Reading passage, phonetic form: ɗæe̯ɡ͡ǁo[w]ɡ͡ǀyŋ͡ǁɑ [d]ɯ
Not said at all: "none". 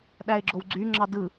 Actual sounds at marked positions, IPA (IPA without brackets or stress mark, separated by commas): w, d